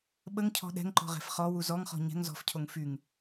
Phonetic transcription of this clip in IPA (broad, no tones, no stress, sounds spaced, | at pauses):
ɓ ə ŋ cʰ ɔ̤ ɗ ɛ̤ ŋ ǃ ɔ̤ ʁ ɛ̤ f χ ɔ w u z ɔ ŋ χ ɔ̤ ɲ ɛ̤ ŋ z ɔ̤ f cʰ o ŋ f y ŋ